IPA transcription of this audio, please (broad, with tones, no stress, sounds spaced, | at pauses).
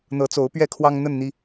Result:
n̪ ɤ˨˦ t͡s o˨˦ ʊ̯ p ɥ ɛ˥˨ kʰ w ɑ˦ ŋ n̪ ə˥˨ n n̪ i˦